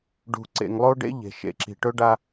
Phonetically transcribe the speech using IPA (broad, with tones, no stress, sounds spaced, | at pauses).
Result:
ɖ ṳ˨ ǀ ḛ˨ ŋ lˠ o˦ ɖ ḛ˦ ʎ e̤˨ ʃ ḛ˨ ǁ i̤˨ ʈ ɵ˦ ɖ a˦